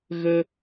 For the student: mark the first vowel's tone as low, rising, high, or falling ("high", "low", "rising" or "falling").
high